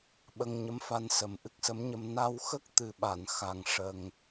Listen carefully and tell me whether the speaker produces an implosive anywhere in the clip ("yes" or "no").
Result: yes